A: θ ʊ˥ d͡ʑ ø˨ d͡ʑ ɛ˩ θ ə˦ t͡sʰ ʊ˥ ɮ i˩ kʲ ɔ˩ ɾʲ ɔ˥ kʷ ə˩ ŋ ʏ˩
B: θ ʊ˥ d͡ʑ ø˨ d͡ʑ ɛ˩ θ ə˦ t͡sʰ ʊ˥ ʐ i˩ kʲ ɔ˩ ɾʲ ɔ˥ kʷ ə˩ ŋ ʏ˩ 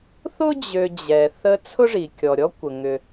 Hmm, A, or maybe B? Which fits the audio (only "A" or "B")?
B